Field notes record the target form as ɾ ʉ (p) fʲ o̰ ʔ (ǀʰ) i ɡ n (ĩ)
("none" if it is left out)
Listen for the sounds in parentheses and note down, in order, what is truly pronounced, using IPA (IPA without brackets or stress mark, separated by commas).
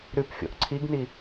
p, ǀʰ, i